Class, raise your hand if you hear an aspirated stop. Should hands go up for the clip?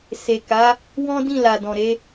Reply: no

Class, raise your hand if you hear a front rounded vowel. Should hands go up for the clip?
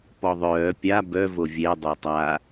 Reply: yes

